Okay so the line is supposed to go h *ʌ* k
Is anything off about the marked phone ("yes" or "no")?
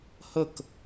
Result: yes